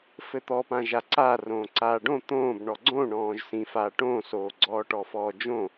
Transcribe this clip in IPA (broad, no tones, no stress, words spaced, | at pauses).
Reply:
fɘt̪ɔpã ʒaǀa rõːǀaːɖõ t̪õːb ɳɔɡ͡ǀõ ɳɔ̃ːʒsĩ faːʈõsoː ɡ͡ǀɔːʈɔfɔːd͡ʒõ